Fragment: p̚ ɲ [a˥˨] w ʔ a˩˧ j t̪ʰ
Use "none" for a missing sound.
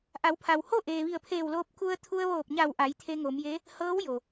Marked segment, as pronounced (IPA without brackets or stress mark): a˧˩